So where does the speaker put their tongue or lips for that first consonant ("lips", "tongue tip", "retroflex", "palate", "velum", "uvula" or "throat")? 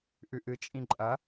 throat